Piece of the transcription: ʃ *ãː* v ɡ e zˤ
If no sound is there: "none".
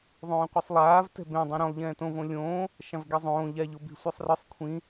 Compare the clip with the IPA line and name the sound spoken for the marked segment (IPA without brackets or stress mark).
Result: ã